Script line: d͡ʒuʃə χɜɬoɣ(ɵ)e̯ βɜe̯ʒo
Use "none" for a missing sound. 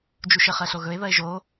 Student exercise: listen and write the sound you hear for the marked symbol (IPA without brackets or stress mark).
ɵ